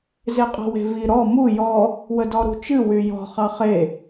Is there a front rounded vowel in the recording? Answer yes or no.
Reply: yes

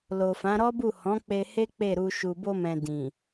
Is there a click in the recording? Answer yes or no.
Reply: no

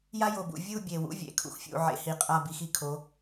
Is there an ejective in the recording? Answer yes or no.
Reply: yes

